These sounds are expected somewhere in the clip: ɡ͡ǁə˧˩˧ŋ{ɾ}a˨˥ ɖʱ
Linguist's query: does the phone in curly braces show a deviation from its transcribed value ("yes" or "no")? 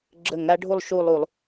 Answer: no